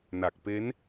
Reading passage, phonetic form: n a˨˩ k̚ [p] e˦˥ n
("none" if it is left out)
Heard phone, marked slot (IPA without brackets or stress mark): p